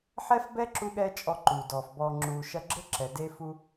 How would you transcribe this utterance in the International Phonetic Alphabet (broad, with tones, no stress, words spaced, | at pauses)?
ħɛ˦f bɛː˦ǁu˧ɠɛː˧ t͡ʃʼɔ˧ǃuː˨ dɔː˨f bɔː˨ŋ͡ǁuː˨ ʃɐ˧ɡ͡ǁɘ˦ǁɛ˨ de˧ fu˧